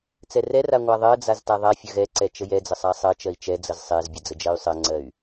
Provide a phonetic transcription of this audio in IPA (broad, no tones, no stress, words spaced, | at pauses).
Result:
t͡sɛrɛra ŋʷaðˤɜd͡zaz taðˤafʲə ɣɛǀɛ t͡ʃəjɛd͡zə sˤasˤɜt͡ʃɜi̯ t͡ʃɛd͡zəz sˤɛzbʲə d͡zəd͡ʒɜy̯sˤɜŋ͡ǀɜy̯